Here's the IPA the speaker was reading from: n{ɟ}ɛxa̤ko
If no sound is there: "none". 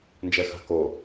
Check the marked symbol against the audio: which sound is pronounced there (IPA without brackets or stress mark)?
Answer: d͡ʒ